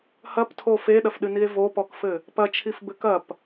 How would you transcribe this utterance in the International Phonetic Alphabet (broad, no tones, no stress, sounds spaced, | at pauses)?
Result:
h ɐ p tʰ o f e ɗ ɐ f ɗ ɨ n i e̯ v o p ɔ k f ɘ | p ɐ t͡ʃʰ i f b ɘ k ɐ p